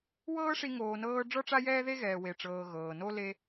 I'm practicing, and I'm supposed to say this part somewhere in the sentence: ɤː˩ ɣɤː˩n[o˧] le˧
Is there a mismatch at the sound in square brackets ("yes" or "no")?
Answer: yes